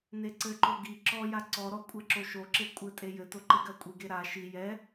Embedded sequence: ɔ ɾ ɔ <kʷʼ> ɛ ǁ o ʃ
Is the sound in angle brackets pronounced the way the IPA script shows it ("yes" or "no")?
yes